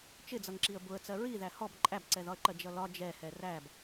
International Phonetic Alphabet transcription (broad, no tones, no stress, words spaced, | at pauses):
t͡ʃɪd͡zʌŋǁiə̯ bʊə̯t͡sɜ ɹiðæ hɔb ǃʼæbǀɛðɒə̯ǃɜ d͡ʒʌlɒ d͡ʒɛhɛ ræb